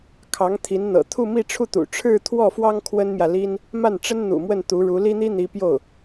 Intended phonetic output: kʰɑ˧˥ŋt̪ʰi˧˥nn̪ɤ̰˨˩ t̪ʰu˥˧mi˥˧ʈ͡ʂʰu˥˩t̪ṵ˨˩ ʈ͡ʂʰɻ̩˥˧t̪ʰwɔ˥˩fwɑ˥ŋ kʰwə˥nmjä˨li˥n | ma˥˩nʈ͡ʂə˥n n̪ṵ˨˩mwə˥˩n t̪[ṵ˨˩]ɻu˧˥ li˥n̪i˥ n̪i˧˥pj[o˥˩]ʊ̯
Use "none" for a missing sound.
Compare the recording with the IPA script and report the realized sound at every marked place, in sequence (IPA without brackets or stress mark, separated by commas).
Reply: u˧˥, o˥˩